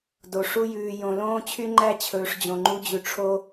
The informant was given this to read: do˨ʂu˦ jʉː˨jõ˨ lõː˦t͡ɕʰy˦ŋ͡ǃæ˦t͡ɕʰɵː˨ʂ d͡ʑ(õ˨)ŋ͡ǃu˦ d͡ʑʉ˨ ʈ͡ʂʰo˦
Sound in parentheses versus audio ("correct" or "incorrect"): correct